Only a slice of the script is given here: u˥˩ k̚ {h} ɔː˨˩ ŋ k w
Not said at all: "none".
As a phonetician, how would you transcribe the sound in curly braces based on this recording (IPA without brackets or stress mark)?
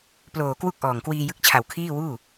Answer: ʔ